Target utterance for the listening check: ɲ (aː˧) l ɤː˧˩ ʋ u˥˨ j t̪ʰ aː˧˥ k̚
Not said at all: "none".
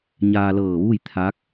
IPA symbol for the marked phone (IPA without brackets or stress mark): aː˧